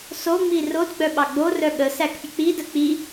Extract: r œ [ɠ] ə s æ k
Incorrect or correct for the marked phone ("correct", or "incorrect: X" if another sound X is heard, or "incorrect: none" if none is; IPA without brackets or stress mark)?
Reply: correct